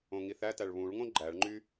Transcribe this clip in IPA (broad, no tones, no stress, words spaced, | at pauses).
õŋiθætæɭ βũɭŋõ ɡ͡ǃæɭŋ͡ǃy